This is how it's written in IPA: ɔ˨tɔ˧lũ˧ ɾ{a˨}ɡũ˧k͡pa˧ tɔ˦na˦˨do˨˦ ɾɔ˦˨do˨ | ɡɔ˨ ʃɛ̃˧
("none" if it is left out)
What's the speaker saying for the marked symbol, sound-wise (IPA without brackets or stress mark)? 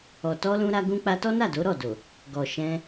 a˧